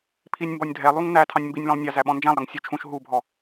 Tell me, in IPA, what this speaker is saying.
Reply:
pʰ i nʲ m b ɔ nʲ dʱ ɛ lˠ u ŋ n æ tʰ ɑ̃ nʲ m b i nʲ l ɔ̃ lˠ nʲ ɑ z æ ɓ ɔ̃ n d͡ʒ æ̃ lˠ ɾ ʌ ŋ sʲ u t͡ʃʰ ũ ʃ ɦ u bʱ ɔ

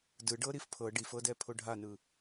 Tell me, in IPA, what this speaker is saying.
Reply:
d ɯ ɖ ɤ ɾ i f pʰ ɤ ɖ i f ɤ d ɛ pʰ o ɖʱ a n ɯ

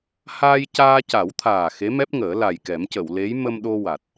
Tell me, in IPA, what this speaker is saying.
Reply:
h aː˧ j c aː˧ c a˨˩˦ w t̪ʰ aː˨˩ x e˧˥ m ɛ˦˥ p̚ ŋ əː˨˩˦ l a˨˩ j k ɛ˨˩˦ m c ə˨˩˨ w l e˧˥ j m ə˧ m ɗ o˧ w a˨˩ t̚

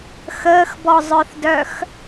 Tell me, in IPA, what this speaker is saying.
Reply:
x əː x b ɔ zˤ œ θ d œ x

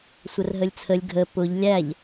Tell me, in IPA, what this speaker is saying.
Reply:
sʷ ə r ɦ ə lʲ t͡sʰ ə lʲ ɡʱ ə p ʊ ʎ lʲ æ ʎ

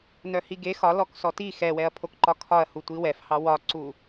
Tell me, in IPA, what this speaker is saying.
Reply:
n œ h i ɡ e x ɒ l ɔ k s ɔ t i x ɛ w ɛ ɐ̯ pʰ o k ǃ ɒ kʰ ɒ ɐ̯ h u tʷ i w ɛ f h ɑ w ɒ ǀ u

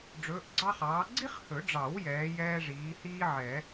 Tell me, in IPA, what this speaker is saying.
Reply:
ɖ͡ʐ ɵː˨˥ ʔ ɡ͡ǀ ɑ˥ χ ɑː˨˥ ɡ͡ǀ i˥ χ h ɵ˨˩˦ ɖ͡ʐ ɑ˨˩˦ w j ɛː˨˥ j ɛː˥ ʐ iː˨˥ h iː˥ ʕ ɛ˨˩˦

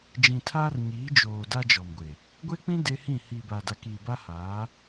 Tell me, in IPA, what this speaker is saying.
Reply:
d͡ʒ ĩ˨ tʰ aː˦ r ɲ iː˨˦ d͡ʒ oː˨ d a˦ d͡ʒ ɔ˨ m ɡʷ e˨ | ɡʷ e˦ k͡p ĩ˦ d e˦ h ĩ˦˨ h i˨ b a˨ d a˨ k iː˨ b a˦ h a˨˦

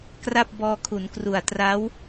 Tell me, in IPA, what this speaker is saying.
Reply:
k r a˥˩ p̚ b ɔː˧ kʰ u˩˦ n k r u˨˩ a̯ t r a˦˥ w

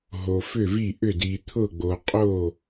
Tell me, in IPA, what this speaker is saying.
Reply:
ɦ o˨ f ʏ˥˩ v i˥˩ ʔ ʏ˥˩ d i˨ t̪ʰ ʊ˥˩ ɡ͡b o˨ qʼ o˥˩

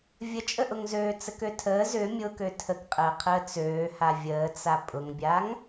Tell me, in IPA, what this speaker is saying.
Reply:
vʲ ə t͡ʃʼ ə ʔ ʊ ŋ z øː t͡s ə k ø tʰ əː z ʏ mʲ ʊ k ø tʰ ə k qʼ əː qʰ əː t͡s øː h a vʲ əː t͡s a pʼ ʊ ŋ bʲ a ŋ

